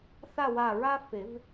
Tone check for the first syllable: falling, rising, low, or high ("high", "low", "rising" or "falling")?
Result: falling